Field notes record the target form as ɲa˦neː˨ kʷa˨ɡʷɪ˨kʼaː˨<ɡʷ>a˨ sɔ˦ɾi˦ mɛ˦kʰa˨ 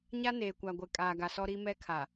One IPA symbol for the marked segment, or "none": ɡ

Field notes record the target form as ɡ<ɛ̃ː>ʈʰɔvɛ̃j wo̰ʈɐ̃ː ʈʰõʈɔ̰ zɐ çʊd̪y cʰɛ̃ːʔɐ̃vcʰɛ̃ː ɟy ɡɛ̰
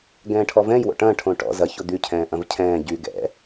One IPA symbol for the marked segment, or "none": ɛ̃ː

